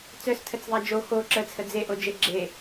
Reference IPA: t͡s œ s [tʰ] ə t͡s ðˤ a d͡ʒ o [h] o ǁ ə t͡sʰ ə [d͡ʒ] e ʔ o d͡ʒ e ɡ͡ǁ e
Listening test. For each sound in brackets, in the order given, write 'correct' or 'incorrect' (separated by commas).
correct, incorrect, incorrect